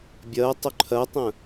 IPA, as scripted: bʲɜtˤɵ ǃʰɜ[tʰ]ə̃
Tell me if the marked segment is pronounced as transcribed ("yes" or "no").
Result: no